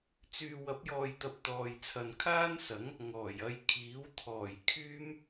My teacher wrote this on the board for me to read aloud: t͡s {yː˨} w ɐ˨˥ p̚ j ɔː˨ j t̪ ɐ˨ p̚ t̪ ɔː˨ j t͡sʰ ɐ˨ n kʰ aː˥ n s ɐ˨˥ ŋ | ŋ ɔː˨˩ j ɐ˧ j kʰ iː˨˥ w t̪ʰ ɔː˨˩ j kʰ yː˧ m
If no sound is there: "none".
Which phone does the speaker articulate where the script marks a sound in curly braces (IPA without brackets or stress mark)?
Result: yː˨